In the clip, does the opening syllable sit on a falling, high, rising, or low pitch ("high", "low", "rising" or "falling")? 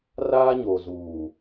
high